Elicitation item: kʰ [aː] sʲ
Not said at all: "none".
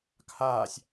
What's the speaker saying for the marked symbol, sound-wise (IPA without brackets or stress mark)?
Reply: aː